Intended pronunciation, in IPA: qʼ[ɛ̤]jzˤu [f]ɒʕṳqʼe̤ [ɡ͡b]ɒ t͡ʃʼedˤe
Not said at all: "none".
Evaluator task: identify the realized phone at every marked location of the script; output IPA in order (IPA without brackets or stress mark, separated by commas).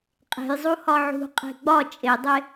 e̤, h, ɡ͡b